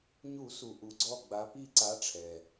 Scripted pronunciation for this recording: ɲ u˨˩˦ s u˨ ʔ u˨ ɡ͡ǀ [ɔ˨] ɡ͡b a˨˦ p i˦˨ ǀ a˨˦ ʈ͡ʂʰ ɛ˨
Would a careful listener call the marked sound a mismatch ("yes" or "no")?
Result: yes